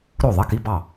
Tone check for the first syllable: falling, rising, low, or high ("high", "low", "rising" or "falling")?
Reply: falling